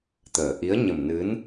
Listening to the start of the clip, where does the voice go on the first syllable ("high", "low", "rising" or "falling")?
low